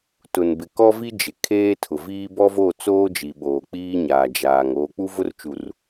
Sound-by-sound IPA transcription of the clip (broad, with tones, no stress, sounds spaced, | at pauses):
t ʊ˨ n b ɪ˨ k ɔ˦ v i˦ d͡ʒ ɪ˨ kʰ eː˦ tʰ ʊ˨ v iː˦ b ɔ˦ v o˦˨ t͡s oː˦ d͡ʒ i˨ ɓ oː˨ k͡p iː˦ ɲ aː˨ d͡ʒ aː˨ ŋ oː˨ k͡p u˦ v ʊ˦ r t͡ʃ u˨ r